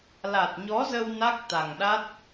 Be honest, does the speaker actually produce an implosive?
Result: yes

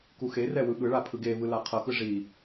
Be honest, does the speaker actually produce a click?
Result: no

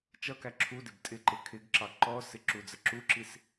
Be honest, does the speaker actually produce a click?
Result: yes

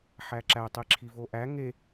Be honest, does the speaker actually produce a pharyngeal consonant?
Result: yes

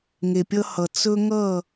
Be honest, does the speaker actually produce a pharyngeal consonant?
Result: no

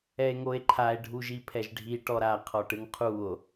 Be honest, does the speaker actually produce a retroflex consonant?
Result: yes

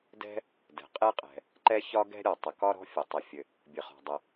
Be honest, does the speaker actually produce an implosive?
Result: no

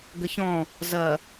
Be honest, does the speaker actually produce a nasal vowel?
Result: yes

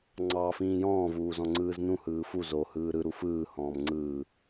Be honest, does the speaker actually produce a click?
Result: yes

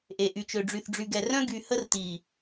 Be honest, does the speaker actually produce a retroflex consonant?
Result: yes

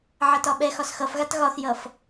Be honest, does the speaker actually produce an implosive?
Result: yes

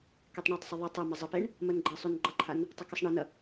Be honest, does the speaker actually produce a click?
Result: yes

